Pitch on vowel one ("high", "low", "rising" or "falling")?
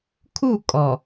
falling